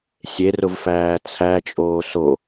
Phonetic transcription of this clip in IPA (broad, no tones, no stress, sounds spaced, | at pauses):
sʲ e r ʊ v f æː t͡sʰ æ t͡ʃʼ oː s o